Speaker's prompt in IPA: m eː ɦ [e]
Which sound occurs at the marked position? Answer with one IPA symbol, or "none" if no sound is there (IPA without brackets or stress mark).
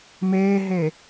e